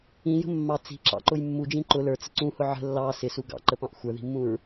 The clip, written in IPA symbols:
ĩjə̤ mːɑ t͡si̤ǁɑ̰ǃʊj mːud͡ʒĩ ǃʊ lə˞t͡sə ǀũhʊ ʕə̤ lːɑ sɪsu ɡɑ̰ǃəpɑ̃ʔ xʷə˞ði̤mːũɹ

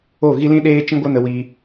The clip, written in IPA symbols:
o˦˨ɣi˦lĩ˦ ɗeː˦ t͡ʃĩ˦ɡʷə˦nə˧wiː˧

